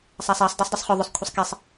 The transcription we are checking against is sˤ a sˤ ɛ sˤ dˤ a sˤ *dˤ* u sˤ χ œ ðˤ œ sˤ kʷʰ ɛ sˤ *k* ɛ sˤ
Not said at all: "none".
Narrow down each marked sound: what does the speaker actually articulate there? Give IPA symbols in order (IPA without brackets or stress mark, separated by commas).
dˤ, k